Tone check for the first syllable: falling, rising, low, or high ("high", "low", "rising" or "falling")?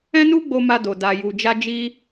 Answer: high